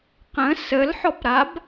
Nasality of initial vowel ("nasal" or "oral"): nasal